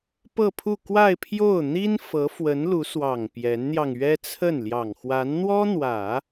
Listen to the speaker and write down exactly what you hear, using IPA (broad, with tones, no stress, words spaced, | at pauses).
pɤ˥˧pʰu˥˧ kwa˥˧ɪ̯pʰjo˥˩ʊ̯ n̪i˥n fɤ˧˥fwə˧˥nlu˧˥swɑ˨˩ŋ pjɛ˧˥nn̪jɑ˧ŋɥɛ˥t͡sʰə˥˩n ljɑ˨˩ŋxwa˧˥nn̪wɔ˥ n̪wä˨˩˦